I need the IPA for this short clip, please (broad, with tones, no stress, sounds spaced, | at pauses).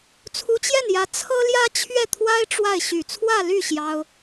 t͡sʰ u˧˥ t͡ɕ j ɛ˥˩ n j ä˧˥ t͡sʰ ɤ˥ l j ä˥ t͡ɕʰ ɥ ɛ˥˩ t̪ʰ w a˥ ɪ̯ ʈ͡ʂ w a˥˩ ɪ̯ ɕ y˨˩ t͡sʰ w ä˥˧ l y˥˩ ɕ j ɑ˥ ʊ̯